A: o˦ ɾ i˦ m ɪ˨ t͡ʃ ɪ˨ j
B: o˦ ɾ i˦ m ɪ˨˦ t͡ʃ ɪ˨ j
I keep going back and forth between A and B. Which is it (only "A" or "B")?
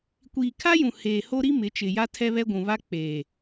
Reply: B